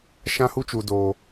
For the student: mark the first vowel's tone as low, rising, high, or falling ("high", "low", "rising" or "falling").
high